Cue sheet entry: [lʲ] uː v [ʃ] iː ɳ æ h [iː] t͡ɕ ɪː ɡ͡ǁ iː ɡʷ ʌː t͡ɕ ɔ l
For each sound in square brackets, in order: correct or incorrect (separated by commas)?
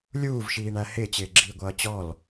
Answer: correct, correct, incorrect